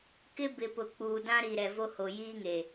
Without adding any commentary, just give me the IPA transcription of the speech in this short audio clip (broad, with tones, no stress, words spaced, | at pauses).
kɪ˦bɪ˨pʊ˨ k͡puː˨dã˦ ɾi˨ɾɛ˨vo˦ho˨ jiː˦ŋe˨